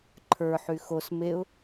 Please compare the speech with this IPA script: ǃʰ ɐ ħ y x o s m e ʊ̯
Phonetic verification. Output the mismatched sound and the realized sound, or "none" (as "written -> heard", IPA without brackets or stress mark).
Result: ɐ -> ə˞